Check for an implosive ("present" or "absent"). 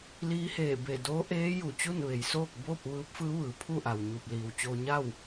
absent